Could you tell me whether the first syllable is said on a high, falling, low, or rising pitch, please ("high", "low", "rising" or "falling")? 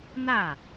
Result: falling